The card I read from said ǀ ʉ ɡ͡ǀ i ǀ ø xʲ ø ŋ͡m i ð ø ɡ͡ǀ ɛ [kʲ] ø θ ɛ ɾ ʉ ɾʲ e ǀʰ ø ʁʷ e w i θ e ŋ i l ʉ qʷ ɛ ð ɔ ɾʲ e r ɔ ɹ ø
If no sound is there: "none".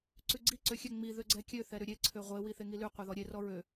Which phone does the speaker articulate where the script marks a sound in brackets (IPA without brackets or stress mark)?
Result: kʲ